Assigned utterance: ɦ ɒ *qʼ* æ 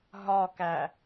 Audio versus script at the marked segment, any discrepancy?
yes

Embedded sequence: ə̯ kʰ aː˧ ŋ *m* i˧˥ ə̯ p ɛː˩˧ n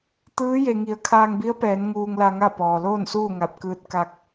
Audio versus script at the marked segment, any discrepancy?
yes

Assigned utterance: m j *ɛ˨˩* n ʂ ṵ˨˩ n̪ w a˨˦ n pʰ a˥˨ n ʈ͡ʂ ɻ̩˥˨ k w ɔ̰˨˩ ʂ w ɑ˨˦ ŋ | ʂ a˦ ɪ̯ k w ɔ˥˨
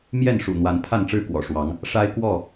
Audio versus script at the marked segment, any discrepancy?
yes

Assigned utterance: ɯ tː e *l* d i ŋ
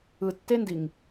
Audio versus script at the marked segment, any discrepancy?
yes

